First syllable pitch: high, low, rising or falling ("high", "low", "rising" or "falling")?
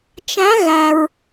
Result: rising